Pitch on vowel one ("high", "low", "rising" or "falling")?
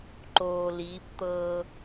low